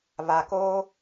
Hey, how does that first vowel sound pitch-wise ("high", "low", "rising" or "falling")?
low